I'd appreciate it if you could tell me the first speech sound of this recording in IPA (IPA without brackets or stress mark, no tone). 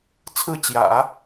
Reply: t͡sʰ